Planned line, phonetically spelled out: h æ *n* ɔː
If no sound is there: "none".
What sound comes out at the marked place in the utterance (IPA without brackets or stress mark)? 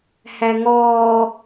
ŋ